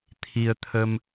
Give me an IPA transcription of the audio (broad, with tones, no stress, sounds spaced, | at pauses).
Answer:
t̪ʰ i˧ ə̯ t̪ʰ ə˧ m